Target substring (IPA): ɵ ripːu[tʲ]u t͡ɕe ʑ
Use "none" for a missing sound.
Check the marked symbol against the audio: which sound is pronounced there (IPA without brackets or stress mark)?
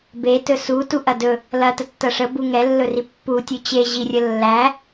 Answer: tʲ